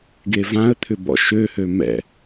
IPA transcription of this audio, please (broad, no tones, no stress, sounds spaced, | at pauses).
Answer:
ɡ e v ã ə̯ t̪ʰ ʏ b ɔ̰ ʃ ø h ø m ɛ̰